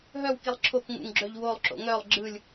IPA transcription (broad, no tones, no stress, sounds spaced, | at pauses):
ɦ œ w k i lˠ ǁʰ o k ŋ ṵ ŋ ɡ͡ǁ œ ʎ w o lˠ ǁ o̰ ŋ œ lˠ ɡ͡ǁ ɯ lʲ